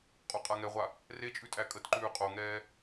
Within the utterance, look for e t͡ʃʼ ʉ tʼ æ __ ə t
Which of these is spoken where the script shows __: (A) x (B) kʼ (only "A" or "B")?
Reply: B